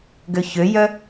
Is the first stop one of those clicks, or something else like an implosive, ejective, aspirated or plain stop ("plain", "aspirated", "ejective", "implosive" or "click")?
plain